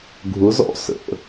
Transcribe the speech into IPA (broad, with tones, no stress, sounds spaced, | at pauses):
ɡʱ ʊ˩˥ z ɔ̰˥˩ s ə̰˩